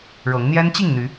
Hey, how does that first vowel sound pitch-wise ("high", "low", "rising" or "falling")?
rising